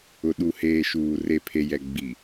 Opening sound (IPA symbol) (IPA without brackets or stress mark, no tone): ʊ